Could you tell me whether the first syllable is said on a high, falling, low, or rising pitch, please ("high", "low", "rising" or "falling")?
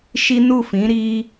high